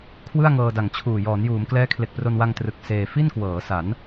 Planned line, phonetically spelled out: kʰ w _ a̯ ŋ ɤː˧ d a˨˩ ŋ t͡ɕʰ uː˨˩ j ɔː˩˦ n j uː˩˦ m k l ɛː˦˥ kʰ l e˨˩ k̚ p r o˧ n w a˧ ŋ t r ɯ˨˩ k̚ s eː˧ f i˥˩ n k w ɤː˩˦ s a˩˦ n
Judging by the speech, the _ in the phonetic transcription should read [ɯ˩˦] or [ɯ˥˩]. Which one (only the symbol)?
ɯ˥˩